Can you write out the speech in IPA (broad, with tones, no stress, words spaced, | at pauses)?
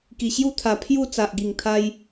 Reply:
ki˨˩ɕju˥˧t̪ʰa˨˩ pʰju˥˧ t͡sa˨ʔɡi˨˩ŋt̪ʰa˧j